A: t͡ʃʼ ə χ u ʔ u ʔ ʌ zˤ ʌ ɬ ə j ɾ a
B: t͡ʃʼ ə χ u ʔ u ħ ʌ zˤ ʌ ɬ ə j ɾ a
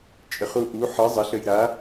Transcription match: B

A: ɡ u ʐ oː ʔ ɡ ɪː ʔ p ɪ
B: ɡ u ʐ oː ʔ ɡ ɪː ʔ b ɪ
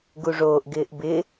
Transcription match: B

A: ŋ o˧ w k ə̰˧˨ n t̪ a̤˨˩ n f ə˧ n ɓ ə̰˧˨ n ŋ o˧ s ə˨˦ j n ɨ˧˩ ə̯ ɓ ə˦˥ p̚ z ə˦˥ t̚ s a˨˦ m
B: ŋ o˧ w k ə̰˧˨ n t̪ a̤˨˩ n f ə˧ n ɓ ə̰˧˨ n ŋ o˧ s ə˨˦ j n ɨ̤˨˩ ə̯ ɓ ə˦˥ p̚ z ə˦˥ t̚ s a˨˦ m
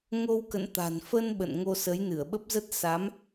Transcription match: A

